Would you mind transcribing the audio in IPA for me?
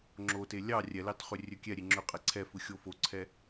ŋ͡ǁ o t e lʲ ɑ rʲ ɛ l ɑ t χ ø rʲ ø kʲ ɛ ɾʲ e ŋ͡ǁ ø qʼ ɛ ǀʰ ɛ f ɯ xʲ o f o ǀʰ ɛ

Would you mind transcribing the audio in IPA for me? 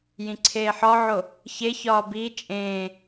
j ĩ ǀʰ eː ħ ɒ ʕ o | ç e ç ɒː b i t͡ʃʼ ẽː

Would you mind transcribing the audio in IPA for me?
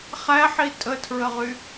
χ æ ħ i tʼ ə tʰ ɹ ə ʁ y

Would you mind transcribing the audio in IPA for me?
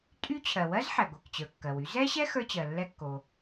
tʼ y˥ t͡ɕʰ ɜ˩ w ɜ˥ z ħ ɛ˩ ɡʷ ə˞˩ k t͡ɕ ə˞˩ kː ɜ˩ w y˥ z ɛ˥ ɕ ɛ˥ x ə˞˥ t͡ɕ ɜ˩ lː ɛ˥ kː o˩

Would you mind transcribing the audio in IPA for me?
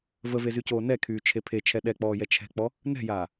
v ə v e z y c oː n ɛ kʰ yː t͡ʃʰ e pʰ e t͡ʃʰ ɛ ɗ ɛ k͡p ɔː j ɛ t͡ʃʰ ɛ̤ k͡p ɔ | n ɛ̤ j aː

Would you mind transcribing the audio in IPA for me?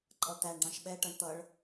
ǃʼ ʌ t̪ æ ɳ ɖ ɑ̃ ʃ ɓ ɛ ʈ ʌ ɳ t̪ ʌ ɭ

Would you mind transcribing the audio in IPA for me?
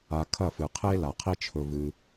a˧ kʰ ɐ˦˨ f ɨ˨ qʰ e˦ l a˨ qʰ i˦ t͡ʃʰ ɵ˧ v ɨ˧

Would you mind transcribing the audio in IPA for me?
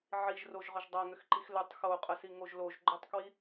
ʕ i ʒ r o ʒ ʁ ʏ ʒ dˤ a ŋ ʏ x ǃ i x l ʏ tˤ x o qʼ ə s i ŋ o ʒ l o ʒ ɡ͡ǃ ʏ tˤ k w i

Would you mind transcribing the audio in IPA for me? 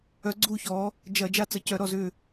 œ˨˦ ɡ͡ǀ u˦˨ ç ɔ˨˦ | d͡ʒ ɐ˧˩˧ d͡ʒ a˦˨ t͡s ə˧˩˧ c œ˧˩˧ ɾ ɔ˦˨ z ʏ˦˨

